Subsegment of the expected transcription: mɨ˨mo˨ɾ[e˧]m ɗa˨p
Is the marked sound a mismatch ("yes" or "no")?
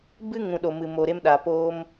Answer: no